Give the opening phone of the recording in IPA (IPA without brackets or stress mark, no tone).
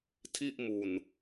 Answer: tʰ